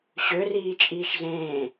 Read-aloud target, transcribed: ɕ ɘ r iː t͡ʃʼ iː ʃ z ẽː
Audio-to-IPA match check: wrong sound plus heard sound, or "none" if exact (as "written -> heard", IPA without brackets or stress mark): ɘ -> ø